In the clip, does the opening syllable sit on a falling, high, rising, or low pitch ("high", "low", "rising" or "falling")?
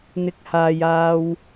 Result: rising